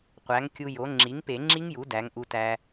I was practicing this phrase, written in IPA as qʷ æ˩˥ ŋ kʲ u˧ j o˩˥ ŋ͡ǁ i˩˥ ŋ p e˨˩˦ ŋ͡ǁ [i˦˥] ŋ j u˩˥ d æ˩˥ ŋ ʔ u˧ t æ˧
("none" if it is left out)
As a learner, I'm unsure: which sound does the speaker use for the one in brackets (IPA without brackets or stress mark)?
i˦˥